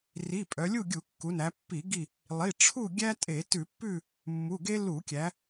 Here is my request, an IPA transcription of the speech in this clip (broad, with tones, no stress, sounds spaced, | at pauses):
r i˩˧˩ pʼ œ˩˧ lʲ u˥˨ ɡʲ u˧˩˧ kː u˩˧ n æ˩˧ pː i˧˩˧ ɡ i˧˩ | lˠ i˩˧˩ ʈ͡ʂʰ u˥˨ ɡʲ æ˥ tʼ e˧˩˧ t ʉ˧˩˧ pː ʉ˥˨ | mː u˩˧˩ ɡ e˥ l u˧˩˧ kʲ æ˩˧